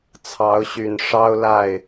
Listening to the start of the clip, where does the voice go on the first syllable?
rising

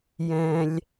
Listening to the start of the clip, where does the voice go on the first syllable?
low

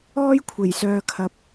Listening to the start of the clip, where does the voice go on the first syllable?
high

